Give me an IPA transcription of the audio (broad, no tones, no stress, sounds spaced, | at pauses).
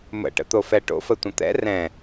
m ə̰ ʈ ə̰ t̪ o f ɛ ʈ o̰ f ə tʷ ə̃ t̪ ɛ̰ r ɛ̃